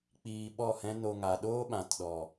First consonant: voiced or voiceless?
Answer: voiceless